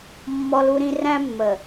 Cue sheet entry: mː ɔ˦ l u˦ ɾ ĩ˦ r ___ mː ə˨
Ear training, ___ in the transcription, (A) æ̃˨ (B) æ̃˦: B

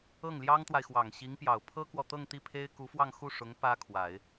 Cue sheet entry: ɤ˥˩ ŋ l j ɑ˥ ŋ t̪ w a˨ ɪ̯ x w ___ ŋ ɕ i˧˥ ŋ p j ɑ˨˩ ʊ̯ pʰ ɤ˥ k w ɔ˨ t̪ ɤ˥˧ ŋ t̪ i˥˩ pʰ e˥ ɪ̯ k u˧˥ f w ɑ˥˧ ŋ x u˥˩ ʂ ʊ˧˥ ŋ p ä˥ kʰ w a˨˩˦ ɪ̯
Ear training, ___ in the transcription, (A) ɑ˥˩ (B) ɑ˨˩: B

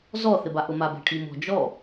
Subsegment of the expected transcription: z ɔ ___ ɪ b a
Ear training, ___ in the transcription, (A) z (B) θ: B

